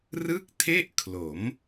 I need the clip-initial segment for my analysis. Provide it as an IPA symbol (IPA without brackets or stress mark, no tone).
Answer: r